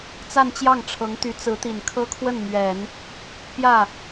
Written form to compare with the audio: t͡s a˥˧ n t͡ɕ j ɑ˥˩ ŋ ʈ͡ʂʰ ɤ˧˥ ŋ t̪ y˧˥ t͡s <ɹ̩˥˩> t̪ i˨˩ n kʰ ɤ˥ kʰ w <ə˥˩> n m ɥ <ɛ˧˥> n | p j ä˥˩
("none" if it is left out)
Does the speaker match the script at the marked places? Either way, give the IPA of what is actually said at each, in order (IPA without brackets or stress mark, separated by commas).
ɹ̩˧˥, ə˥˩, ɛ˨˩˦